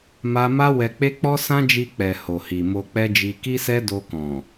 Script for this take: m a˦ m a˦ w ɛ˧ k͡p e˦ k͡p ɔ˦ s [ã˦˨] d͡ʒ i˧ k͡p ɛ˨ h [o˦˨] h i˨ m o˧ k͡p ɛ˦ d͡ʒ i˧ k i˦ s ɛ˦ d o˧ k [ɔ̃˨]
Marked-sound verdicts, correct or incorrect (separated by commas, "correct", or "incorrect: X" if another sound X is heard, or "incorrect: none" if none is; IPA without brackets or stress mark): incorrect: ã˦, incorrect: o˨, correct